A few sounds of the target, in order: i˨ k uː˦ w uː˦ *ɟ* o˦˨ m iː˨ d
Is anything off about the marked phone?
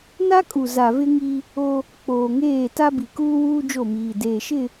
yes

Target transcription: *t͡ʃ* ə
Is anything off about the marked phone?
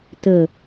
yes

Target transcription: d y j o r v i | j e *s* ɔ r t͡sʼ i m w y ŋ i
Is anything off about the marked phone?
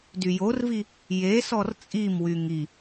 no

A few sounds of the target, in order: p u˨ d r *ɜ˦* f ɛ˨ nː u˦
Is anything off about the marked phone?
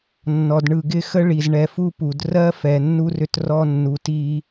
no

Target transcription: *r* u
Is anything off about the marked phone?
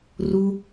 no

